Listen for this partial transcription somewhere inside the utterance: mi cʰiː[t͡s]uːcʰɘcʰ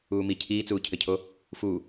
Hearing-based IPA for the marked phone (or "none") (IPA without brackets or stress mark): t͡s